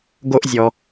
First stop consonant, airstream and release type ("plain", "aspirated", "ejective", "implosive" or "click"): plain